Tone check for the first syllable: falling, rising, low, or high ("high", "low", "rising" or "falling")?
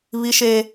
high